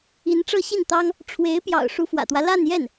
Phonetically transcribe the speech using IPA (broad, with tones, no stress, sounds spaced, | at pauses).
i˧˥ n ʈ͡ʂ ɤ˥˧ ɕ i˥˩ n t̪ ɑ˥ ŋ | ʈ͡ʂʰ w e˧˥ ɪ̯ p j ɑ̰˨˩ ʊ̯ ʂ u˧˥ f w ä̰˨˩ t̪ w ä˦ l a˥˧ n j ɛ˥˩ n